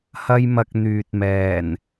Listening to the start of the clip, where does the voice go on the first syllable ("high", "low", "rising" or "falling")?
high